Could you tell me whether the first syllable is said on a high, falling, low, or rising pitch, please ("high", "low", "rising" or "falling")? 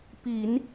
low